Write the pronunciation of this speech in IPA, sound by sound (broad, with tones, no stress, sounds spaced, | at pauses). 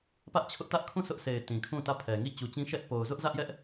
p ä˦ ʔ t͡ɕʰ ʊ˦ ʔ t ä˦ ʔ kʰ ũ˦˨ sʰ ʊ˦ ʔ sʰ e˨ ɪ̯ t ĩ˨ kʰ ũ˦˨ t ä˦˨ pʰ ɛ˨ ŋ i˦˨ t͡ɕ u˨ t͡ɕ ĩ˦ ʃ ɛ˦ ʔ p o˨ ʊ̯ z ʊ˦ ʔ z ä˦ ʔ j ɛ˦ ʔ